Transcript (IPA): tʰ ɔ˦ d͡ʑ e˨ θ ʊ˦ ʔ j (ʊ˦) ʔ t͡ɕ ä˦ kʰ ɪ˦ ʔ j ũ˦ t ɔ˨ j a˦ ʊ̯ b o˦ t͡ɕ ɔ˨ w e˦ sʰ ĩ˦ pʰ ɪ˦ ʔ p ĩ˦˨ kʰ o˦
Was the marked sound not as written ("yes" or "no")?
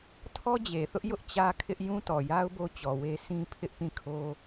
no